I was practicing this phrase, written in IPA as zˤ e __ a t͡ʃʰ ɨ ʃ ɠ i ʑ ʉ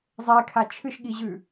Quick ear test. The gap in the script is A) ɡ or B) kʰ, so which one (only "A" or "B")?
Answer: B